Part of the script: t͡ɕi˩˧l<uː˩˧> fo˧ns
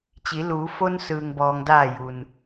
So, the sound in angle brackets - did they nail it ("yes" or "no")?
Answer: yes